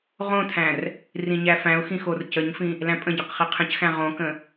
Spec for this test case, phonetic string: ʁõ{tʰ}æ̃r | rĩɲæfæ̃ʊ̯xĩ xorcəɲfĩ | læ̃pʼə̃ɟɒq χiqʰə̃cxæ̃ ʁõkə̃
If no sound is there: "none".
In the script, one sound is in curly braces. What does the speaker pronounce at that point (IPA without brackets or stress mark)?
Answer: tʰ